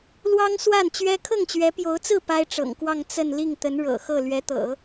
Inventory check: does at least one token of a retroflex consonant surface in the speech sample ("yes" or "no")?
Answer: yes